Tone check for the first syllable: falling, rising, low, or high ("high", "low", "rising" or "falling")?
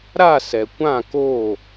falling